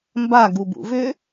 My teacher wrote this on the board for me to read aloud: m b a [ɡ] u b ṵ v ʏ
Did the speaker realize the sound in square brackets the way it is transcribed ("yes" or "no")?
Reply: yes